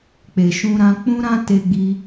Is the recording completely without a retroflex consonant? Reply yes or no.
yes